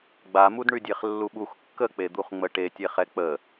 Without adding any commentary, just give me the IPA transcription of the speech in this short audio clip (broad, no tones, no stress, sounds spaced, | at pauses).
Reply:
ɡ͡b a m u d ɳ y dʲ e χ lː u ɓ u x kː ə k͡p e d̪ u χ ŋ͡m ə ʈ e tʲ e χ ɛ k͡p ə